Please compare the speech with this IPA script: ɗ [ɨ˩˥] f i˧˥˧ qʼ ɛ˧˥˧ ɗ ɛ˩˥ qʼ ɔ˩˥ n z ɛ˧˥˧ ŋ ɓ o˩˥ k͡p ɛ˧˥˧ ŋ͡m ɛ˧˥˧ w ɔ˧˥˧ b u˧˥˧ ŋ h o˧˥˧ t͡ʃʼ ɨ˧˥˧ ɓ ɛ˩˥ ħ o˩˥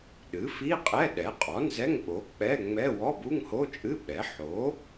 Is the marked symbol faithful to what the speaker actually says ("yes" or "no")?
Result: yes